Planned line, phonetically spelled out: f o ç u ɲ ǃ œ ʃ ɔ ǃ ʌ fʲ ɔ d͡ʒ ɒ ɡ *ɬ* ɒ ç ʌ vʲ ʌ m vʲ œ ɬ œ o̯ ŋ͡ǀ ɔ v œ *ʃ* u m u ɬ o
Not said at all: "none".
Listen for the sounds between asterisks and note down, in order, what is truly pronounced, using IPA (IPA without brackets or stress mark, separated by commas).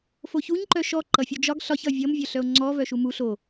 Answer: ɬ, ʃ